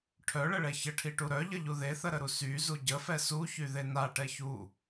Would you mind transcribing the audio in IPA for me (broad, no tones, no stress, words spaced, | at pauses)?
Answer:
ʈʰœɭəɭɛ çəʈʰiʈu ɾœʎəʎu ðeθəɾəɾu syzu ɟəfɛ suçyðe naʈɛ çu